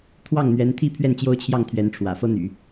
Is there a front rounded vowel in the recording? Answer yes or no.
yes